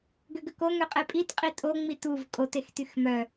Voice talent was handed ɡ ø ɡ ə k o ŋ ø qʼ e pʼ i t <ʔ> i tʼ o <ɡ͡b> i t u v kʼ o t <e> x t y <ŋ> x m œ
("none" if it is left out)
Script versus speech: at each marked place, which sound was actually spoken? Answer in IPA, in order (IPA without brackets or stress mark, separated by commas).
qʼ, ŋ͡m, e, none